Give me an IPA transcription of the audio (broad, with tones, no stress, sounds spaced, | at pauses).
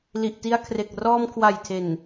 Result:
l i˨˩ ʔ t i˧ a̯ kʰ r e˨˩ k̚ r ɔː˧ m kʰ w a˨˩ j tʰ e˨˩ n